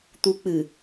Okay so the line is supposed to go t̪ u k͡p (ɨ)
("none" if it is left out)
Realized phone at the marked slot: ɨ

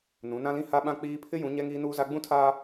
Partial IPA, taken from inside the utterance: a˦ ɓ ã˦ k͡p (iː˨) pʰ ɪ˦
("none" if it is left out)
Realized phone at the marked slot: iː˦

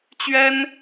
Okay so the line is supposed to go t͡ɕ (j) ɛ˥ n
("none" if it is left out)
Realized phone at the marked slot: ɥ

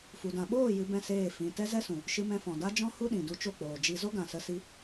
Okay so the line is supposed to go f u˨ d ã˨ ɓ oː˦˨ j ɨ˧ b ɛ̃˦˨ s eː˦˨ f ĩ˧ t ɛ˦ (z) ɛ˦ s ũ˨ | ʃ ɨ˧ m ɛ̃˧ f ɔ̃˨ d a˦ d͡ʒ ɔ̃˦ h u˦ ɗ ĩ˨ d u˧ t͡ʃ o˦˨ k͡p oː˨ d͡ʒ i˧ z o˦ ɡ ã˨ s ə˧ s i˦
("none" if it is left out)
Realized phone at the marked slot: z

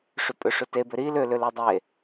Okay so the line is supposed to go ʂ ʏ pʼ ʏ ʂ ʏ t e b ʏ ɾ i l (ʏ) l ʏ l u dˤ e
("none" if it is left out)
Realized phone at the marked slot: ʏ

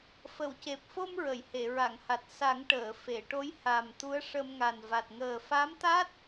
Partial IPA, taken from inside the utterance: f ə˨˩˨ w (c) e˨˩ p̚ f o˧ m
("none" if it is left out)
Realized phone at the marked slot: c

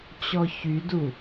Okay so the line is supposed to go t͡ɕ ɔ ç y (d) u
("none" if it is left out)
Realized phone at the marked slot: d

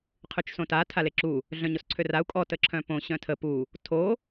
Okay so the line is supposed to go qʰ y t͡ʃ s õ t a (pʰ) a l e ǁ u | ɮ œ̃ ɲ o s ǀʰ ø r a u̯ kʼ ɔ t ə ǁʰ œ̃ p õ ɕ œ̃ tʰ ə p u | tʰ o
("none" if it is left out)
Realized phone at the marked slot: tʰ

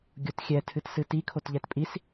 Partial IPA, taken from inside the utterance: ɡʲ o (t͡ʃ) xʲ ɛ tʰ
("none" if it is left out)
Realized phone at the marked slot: t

